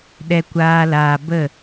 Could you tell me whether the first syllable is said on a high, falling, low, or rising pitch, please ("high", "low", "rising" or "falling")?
high